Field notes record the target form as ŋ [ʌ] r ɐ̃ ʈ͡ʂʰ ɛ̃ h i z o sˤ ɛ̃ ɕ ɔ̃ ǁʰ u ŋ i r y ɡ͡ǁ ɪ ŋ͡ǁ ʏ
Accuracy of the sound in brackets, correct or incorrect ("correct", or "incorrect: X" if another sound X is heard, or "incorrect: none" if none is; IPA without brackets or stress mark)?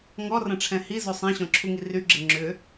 incorrect: ɔ